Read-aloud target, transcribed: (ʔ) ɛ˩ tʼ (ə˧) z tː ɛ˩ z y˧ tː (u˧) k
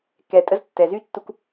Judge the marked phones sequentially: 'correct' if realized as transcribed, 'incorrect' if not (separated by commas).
incorrect, correct, correct